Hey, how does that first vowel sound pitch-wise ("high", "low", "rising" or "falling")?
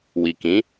low